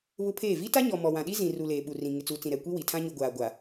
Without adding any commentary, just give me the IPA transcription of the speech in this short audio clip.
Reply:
βʊ˦pʰeː˦˨ vi˦ta˦ɲɔ˨ mɔ˨wã˨ɗi˦ zĩ˨ ru˨ leː˨ɓu˨rĩ˨ ŋɪ˨t͡suː˨t͡sĩ˨ ɾɛ˨ kʷi˦wi˨tʰã˦ ɲu˨ ɡʷaː˨ ɡʷa˨

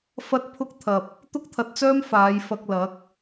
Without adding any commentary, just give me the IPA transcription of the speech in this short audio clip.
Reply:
fɐ˧t̚ pʰʊ˥k̚t̪ʰɐ˧p̚ | t̪ʊ˥k̚t̪ʰɐ˨˥t̚t͡sœː˥m faː˨˧jfɐ˧k̚lɐ˨˥k̚

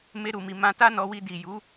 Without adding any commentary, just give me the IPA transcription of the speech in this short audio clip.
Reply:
me˧ɾu˨mi˨ mã˧ta˦nɔ˧wi˧ di˨ju˨˦

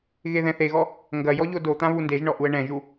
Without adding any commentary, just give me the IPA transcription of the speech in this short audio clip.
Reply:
ɣeðɛ̃θeɣɔ | ŋɡɐ jɔʎodot̪ã βundeʒɳɔ ʔuə̯ɳɛ̃ʒu

